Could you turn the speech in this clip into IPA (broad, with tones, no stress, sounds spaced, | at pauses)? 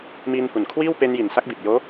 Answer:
m iː˧ n h u˨˩ n kʰ w iː˥˩ w p e˧ n j i˨˩ n s a˦˥ k̚ b i˨˩ t̚ j oː˦˥